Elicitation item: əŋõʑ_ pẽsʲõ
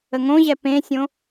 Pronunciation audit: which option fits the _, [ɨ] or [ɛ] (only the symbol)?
ɛ